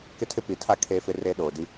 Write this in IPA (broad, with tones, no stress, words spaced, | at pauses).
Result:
kɪ˦tʰɪ˦pi˨tʰa˦ kʰe˦fɪ˦ re˦ ɗoː˨di˦